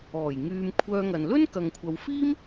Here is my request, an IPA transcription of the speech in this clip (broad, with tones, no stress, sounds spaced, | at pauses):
ɔː˨˩ j ŋ yː˨ m kʷʰ œː˧ ŋ ɐ˨ n l ɵ˥ n k ɐ˨ ŋ kʷʰ ɐ˨ w f iː˥ m